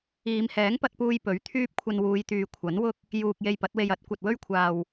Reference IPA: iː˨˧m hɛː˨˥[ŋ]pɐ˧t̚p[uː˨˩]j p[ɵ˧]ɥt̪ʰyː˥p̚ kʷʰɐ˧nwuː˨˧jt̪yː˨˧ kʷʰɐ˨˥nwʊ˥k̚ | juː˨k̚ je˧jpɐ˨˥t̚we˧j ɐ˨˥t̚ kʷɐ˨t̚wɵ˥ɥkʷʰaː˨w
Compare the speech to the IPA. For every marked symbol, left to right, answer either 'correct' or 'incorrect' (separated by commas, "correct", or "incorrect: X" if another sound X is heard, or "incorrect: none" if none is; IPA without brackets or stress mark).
correct, incorrect: uː˧, incorrect: ɵ˨˥